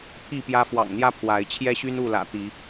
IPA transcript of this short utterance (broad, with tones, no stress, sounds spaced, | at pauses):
pʰ i˥˨ p j ä˦ f w ɑ̰˨˩ ŋ n̪ j ä˦ pʰ w a˨˦ ɪ̯ t͡ɕʰ j ɛ˦ ɕ y˦ n u˥˨ l ä̰˨˩ t̪ i˨˦